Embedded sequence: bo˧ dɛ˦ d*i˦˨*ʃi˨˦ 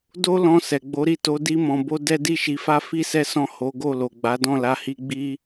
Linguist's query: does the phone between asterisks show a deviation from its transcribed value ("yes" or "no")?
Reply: no